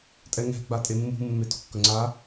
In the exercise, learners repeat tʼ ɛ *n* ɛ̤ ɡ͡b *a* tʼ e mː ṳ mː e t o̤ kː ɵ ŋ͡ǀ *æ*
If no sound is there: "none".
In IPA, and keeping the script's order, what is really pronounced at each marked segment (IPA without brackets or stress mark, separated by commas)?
ŋ, a, a